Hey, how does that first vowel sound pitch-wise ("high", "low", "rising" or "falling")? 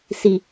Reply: low